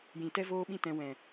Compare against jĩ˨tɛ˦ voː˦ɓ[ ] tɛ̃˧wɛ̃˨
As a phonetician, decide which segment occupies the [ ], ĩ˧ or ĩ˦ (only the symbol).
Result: ĩ˦